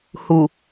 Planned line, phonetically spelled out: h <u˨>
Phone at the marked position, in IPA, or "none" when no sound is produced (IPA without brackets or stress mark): u˨